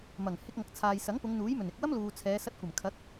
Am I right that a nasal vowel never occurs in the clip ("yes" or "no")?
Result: yes